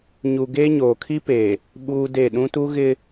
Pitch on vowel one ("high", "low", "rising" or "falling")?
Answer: low